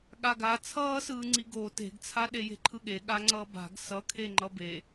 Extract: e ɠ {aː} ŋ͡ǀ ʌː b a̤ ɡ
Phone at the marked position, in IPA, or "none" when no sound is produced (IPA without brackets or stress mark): a